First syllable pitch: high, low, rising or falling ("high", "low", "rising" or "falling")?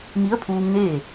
rising